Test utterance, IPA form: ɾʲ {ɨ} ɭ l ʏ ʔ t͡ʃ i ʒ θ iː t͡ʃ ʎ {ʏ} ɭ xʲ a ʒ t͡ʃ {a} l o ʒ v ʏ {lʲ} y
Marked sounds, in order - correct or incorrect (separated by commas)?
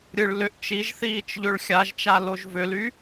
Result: correct, correct, correct, incorrect